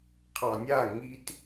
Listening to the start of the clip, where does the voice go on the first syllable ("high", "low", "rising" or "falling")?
low